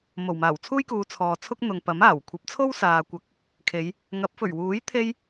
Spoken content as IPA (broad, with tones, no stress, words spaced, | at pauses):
mo˨˩wmaː˨˩w t͡sʰuː˥jkuː˨˧ t͡sʰɔː˨t͡sʰʊ˥k̚ n̪ʊ˨ŋpɐ˨˥maː˨˩w kʷʰɐ˨˥p̚t͡sʰo˥w saː˨ kʷɐ˨˥k̚ | kʰe˨˧j | ŋɐ˨˥p̚ fɵ˨˩ɥwuː˨˥j t̪ʰe˧j